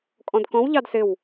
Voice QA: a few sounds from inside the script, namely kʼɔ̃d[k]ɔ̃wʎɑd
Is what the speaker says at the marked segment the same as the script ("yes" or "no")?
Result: yes